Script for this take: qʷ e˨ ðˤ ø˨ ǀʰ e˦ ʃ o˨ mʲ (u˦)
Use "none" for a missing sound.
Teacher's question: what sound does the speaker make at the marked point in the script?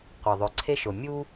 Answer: u˦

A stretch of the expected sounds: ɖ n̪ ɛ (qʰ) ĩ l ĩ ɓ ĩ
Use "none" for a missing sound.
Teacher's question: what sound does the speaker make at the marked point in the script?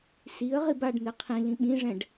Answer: qʰ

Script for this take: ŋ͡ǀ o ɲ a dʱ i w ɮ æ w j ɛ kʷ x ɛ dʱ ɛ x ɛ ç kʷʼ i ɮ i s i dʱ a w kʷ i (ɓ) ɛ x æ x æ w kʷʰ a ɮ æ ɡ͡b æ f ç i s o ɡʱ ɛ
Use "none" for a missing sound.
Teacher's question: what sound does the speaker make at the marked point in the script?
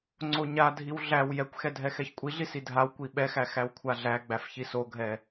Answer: ɓ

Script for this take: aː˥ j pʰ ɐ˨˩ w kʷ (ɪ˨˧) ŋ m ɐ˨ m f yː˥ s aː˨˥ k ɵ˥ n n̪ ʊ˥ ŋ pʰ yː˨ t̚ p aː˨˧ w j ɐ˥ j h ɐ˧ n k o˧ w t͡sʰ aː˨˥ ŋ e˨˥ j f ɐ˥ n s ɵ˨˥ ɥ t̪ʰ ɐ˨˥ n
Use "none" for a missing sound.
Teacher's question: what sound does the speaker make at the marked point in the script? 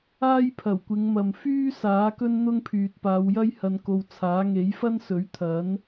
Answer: ɪ˨˧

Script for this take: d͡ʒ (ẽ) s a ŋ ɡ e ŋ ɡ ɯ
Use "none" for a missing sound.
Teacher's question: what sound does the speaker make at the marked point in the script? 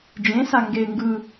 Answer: ẽ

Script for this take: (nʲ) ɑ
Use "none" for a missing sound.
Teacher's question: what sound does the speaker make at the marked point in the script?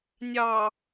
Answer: nʲ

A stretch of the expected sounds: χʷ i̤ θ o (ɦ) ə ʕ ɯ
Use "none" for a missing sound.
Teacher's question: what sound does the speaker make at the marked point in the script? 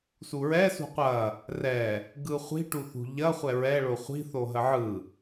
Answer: ɦ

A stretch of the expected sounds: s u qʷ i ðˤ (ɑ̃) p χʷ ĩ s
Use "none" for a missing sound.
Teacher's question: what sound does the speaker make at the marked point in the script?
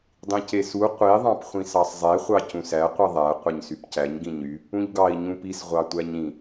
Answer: ɑ̃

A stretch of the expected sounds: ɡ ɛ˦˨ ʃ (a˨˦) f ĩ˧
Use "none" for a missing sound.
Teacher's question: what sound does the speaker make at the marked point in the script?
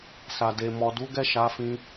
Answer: a˨˦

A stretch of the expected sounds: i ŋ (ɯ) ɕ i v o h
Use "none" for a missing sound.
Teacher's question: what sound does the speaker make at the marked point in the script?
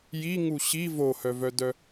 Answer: u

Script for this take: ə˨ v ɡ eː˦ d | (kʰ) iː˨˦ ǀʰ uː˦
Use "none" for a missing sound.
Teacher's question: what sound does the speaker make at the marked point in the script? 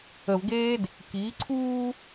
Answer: k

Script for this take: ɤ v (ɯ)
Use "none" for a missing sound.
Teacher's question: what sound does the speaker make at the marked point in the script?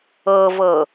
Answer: ɤ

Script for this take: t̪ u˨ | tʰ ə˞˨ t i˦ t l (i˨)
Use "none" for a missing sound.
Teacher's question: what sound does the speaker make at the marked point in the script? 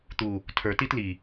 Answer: i˨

